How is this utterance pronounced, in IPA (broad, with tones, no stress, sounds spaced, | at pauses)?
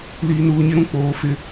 l iː˨ n uː˨ ɲ ɪ˦ ɾ ũ˦ k͡p oː˨˦ f ɪ˦